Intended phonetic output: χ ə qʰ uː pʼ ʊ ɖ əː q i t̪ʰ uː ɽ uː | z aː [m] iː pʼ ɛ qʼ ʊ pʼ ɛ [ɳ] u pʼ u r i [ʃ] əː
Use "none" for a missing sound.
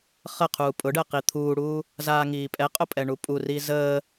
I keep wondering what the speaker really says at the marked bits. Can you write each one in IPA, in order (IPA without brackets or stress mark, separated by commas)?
ŋ, ɳ, z